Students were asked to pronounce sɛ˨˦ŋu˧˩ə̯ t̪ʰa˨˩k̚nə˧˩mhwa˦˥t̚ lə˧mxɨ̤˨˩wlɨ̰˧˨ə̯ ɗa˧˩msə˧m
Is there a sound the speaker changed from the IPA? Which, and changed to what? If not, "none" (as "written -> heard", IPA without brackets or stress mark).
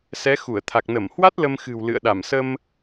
ŋ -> x